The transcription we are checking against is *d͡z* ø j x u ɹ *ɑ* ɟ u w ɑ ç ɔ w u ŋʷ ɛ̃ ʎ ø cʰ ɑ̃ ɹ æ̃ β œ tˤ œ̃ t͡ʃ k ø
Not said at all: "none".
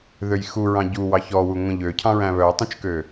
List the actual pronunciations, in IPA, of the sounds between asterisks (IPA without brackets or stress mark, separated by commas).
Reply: ð, ɑ̃